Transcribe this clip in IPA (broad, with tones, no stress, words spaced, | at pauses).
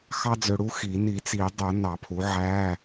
xɑ˥d͡zø˧ ɽu˥xi˨˩˦ ni˨˩˦t͡si˨˩˦ dˤo˨˩˦ nɑ˨˩˦pʰu˩˥ʕæ˧˥˧